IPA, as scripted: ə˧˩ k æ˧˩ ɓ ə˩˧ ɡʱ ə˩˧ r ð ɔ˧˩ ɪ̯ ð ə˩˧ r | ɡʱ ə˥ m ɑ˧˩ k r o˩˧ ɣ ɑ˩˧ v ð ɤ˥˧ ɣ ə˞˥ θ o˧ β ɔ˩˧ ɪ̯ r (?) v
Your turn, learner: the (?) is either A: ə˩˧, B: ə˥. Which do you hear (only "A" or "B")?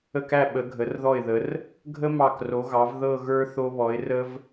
B